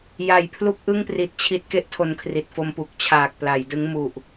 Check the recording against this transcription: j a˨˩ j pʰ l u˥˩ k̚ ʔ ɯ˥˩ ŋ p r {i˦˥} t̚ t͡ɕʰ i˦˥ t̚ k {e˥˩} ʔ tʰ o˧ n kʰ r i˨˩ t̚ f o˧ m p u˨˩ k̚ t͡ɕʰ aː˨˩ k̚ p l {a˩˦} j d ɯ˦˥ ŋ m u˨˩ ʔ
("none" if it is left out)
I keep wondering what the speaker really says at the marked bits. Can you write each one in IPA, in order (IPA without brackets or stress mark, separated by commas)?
i˨˩, e˥˩, a˩˦